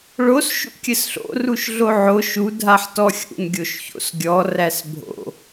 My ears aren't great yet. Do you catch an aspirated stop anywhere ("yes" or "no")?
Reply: no